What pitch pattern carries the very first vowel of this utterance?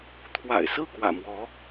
low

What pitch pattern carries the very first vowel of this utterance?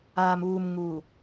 low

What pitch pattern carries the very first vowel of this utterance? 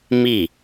falling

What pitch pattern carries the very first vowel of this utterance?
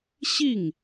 falling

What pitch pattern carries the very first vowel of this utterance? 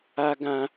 high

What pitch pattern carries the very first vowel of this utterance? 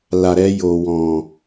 low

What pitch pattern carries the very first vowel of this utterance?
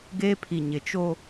high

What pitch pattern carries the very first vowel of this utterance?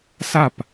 falling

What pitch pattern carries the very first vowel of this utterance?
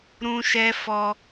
high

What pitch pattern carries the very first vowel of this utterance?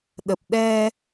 low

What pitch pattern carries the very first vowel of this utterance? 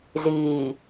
low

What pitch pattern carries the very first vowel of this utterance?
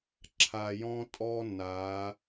low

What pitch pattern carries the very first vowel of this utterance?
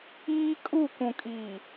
high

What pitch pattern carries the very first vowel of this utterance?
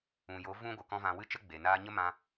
low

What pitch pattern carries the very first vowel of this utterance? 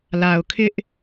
low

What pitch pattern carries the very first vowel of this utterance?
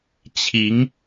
rising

